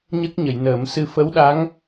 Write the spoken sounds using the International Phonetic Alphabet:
ɲ ə˦˥ k̚ ɲ ə˨˩˨ j n əː˨˩˦ m s ɨ˧ f ə˧˥ w ɗ a˧˥ ŋ

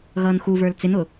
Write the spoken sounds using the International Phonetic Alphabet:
ɣ ʌː n x u v ə˞ l t͡s ɪ n ʊ

